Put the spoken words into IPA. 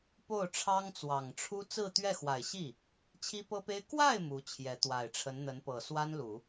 po˥˩ʊ̯ʈ͡ʂʰɑ˥ŋt͡swɑ˨˩ŋʈ͡ʂʰu˥ t͡sɹ̩˥˧t̪ɥɛ˥˩xwa˨˩ɪ̯ ɕi˥˩ | t͡ɕʰi˥pɤ˥pe˥ɪ̯ kwa˥˩ɪ̯ mu˧˥t͡ɕʰjɛ˧˥ t̪wa˨˩ɪ̯ʈ͡ʂʰə˧˥nn̪ə˧˥n pɤ˨˩swa˥nlu˨˩˦

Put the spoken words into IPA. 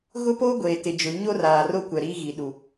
ɣʊ˦poː˦ ɡʷeː˨tɪ˨d͡ʒʊ˨˦ ɲo˦raː˨ro˦kʷɛ˨ ɾiː˦ɣi˨ɗu˨

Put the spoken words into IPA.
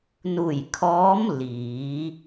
nu˧˩jkʰɔː˧˥m liː˩˧

